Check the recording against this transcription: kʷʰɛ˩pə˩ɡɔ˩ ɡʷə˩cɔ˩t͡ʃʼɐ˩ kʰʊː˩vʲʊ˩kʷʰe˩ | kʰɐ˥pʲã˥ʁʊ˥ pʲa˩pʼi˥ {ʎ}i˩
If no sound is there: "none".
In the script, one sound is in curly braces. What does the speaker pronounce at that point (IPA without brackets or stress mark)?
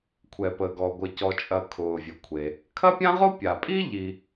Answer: ʎ